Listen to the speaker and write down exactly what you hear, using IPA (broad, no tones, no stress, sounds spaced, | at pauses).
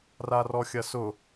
r a r ɔ xʲ ɐ s ʊ